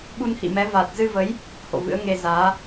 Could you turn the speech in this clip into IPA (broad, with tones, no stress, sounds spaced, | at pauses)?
ɓ u˧ n h ḭ˧˨ m ɛ˨˦ v a˨˩ t̚ z ɨ˧ v ə˨˦ j | h o̰˧˨ v ɨ̰˧˥ ə̯ ŋ e˧ z aː˨˦